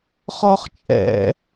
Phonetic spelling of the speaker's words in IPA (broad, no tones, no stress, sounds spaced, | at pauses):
χ ɔ χ t͡ʃʼ ɛ̰